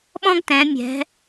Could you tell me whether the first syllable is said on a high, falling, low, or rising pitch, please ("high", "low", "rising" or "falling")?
high